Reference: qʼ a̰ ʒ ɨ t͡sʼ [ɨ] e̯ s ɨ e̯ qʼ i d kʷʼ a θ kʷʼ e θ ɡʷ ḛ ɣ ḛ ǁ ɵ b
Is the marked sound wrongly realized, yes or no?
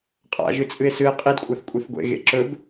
no